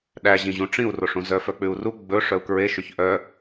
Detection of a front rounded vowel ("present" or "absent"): present